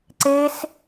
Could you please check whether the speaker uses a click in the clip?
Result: yes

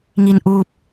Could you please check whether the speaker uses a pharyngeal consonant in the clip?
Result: no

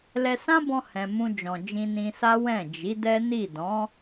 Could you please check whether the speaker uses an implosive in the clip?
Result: no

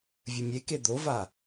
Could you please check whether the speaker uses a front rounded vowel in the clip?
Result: no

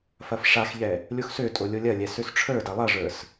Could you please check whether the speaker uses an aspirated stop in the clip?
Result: yes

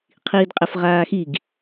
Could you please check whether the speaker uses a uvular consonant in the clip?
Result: yes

